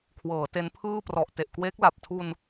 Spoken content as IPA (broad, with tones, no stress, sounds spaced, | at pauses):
kʰ w ɤː˩˦ t e˦˥ n pʰ ɯː˥˩ p r ɔ˨˩ ʔ t e˨˩ ʔ k w eː˦˥ k̚ l a˨˩ p̚ tʰ u˧ n